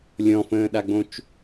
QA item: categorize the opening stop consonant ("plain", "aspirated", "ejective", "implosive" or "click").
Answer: implosive